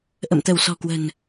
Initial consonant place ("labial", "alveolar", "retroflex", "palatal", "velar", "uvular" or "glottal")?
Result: glottal